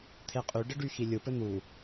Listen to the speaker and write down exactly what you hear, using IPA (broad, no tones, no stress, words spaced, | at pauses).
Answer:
t̪ʰeqʼy ɖɘɖyxilʲɯ pɘn̪u